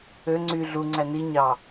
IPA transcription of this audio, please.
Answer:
ø ŋ͡ǀ y ɮ u ŋ͡ǀ æ n i ɲ ɑ

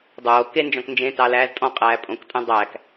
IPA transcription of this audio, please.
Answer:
dˤ oː k e n d͡ʒ ɔ̃ k n d͡ʒ ẽ t ɑ l æː z tʼ ɔ̃ qʼ æː pʼ õ k tʼ æ̃ dˤ æ k

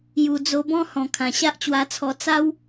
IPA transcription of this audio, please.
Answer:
j u˨˩ d͡z o˧ b ɔ̃˦ h ɔ̃˨˩ kʰ ã˨˩ ɕ a˦ ʔ t͡ɕ w a˧ t͡sʰ ɔ˧ t͡s a˦ w

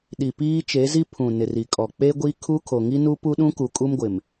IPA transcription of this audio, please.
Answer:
ɗ i˨ p iː˦ t͡ʃ e˨˦ z i˦ pʰ ũ˨ n ɪ˨ r i˨ kʼ ɔ˨ k͡p e˦ ɡʷ i˦ kʰ u˦ kʰ o˨ ŋ i˦ n u˦ p u˦ ɗ ũ˦ k u˨ kʼ u˦ m ɡʷ ɪ˨ m

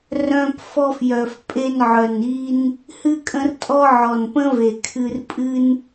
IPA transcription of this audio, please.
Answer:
r œ̃˧ p f ɔ˧ f j œ˩ f pʼ e˧ n ʕ œ˩ n i˧ n | h ɨ˧ kʼ ə̃˧ r tʼ ɔ˧ ʕ ɔ˩ n p ə̃˥ v e˩ kʰ ɨ˧ r pʼ ɨ˧ n

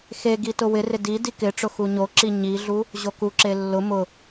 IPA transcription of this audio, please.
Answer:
x e ɡ i t ʊ w ɪ r ɪ d i d i k ɪ ʈ͡ʂ ʊ x u ɲ o ǁ i ɲ i ɮ u | ʑ o k u ǁ e lː ʊ m ʊ

